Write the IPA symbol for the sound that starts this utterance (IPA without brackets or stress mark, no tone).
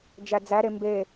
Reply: d͡ʒ